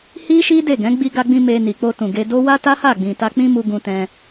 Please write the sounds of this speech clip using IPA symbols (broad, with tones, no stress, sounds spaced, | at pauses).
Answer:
h i˦ ʃ i˦ d e˦˨ ɡ ɛ̃˨˦ ɡ͡b i˧ ɡ a˧ ɡ͡b ĩ˧ m e˧ n i˨ k͡p o˧ t ũ˨ ɡ e˧ d o˦ w a˦ t a˦ h a˦˨ ɡ͡b ĩ˨ t a˧ k͡p ĩ˦ m u˧ ɡ ũ˧ t ɛ̃˧